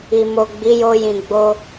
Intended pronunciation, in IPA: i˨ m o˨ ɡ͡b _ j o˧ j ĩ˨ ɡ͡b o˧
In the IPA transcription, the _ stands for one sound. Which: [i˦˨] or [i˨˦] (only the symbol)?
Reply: i˨˦